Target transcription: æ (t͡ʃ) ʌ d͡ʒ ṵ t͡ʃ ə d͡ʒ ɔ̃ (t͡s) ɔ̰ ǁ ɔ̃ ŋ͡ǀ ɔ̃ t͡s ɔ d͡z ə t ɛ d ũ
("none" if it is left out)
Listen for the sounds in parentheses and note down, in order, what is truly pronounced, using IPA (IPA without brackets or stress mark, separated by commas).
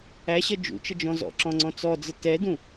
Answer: ɕ, z